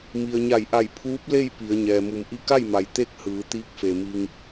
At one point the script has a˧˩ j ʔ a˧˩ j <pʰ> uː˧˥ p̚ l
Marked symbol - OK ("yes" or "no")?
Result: yes